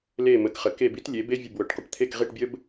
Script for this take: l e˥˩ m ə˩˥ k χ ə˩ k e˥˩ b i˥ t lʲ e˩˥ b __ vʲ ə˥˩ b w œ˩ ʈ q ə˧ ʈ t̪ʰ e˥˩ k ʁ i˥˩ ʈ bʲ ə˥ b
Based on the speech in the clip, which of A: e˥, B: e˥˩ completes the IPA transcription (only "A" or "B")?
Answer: A